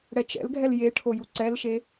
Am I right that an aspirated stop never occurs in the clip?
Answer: no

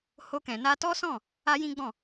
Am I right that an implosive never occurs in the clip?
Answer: yes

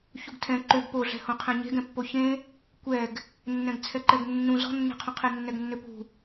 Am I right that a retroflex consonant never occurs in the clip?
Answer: yes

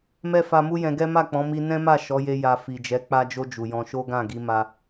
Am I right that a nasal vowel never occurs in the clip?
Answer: no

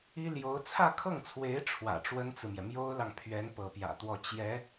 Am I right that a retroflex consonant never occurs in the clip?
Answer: no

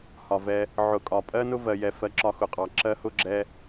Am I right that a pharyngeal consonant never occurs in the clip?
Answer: no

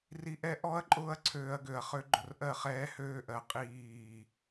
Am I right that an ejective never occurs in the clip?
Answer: no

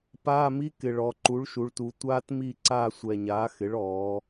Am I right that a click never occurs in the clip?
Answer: no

